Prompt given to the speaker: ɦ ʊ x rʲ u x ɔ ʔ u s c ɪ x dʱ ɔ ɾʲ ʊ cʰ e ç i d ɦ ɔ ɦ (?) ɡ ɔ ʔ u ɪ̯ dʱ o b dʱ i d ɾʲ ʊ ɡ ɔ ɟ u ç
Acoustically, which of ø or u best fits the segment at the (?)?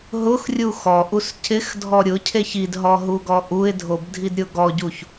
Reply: u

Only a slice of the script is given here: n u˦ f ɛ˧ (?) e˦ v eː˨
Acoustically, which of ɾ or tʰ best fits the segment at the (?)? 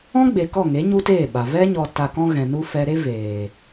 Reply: ɾ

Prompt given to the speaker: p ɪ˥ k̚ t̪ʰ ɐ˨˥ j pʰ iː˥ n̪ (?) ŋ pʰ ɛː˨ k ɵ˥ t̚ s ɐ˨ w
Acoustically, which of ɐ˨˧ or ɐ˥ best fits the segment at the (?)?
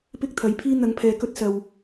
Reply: ɐ˨˧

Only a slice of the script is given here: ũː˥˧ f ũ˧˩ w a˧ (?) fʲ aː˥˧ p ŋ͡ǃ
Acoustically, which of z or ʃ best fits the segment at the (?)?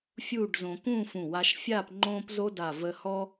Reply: ʃ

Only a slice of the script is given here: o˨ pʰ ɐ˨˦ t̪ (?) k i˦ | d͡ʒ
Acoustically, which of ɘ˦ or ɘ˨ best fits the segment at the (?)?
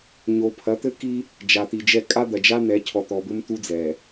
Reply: ɘ˦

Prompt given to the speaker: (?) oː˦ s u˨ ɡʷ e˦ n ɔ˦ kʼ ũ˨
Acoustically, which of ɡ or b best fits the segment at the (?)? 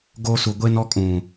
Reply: ɡ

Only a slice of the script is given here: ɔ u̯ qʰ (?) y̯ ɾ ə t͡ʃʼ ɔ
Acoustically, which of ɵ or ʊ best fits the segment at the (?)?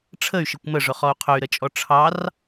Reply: ɵ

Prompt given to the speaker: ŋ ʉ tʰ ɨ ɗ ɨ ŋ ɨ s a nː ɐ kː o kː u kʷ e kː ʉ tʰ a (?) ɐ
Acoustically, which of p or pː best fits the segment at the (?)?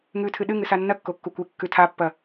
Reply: pː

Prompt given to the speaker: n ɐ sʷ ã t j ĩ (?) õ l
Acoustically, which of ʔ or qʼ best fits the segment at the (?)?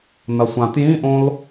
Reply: ʔ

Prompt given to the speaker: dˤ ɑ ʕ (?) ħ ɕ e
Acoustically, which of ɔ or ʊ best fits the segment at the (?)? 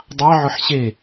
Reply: ʊ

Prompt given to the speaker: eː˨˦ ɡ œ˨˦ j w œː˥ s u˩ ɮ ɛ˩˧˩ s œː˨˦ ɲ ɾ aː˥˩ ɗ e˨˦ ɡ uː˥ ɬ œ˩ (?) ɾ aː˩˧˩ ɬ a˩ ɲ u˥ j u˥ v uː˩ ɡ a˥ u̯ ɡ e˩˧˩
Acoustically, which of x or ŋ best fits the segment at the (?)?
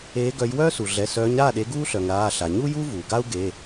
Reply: ŋ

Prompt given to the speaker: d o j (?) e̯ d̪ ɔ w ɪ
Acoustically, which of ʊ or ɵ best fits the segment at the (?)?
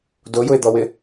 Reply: ʊ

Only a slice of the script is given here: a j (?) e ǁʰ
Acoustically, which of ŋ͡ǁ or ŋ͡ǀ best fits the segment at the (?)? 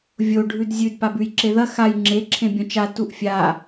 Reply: ŋ͡ǁ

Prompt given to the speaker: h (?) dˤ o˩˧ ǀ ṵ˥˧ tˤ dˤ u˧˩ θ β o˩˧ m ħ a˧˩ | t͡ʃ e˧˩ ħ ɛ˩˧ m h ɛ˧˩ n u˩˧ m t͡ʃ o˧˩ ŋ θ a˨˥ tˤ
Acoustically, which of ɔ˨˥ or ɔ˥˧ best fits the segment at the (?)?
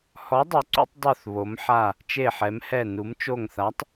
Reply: ɔ˨˥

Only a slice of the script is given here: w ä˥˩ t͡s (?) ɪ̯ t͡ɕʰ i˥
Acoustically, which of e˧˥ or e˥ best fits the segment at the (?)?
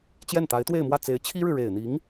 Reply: e˧˥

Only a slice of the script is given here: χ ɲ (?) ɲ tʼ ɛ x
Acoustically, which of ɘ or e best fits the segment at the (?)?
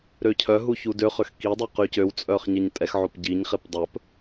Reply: e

